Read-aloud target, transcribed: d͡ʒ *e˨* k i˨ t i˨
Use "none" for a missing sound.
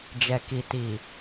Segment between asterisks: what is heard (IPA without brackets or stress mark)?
ɛ˨